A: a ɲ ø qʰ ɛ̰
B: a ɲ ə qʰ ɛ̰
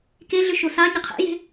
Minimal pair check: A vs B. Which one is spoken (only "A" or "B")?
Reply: B